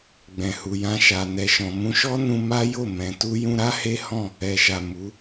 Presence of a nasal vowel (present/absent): present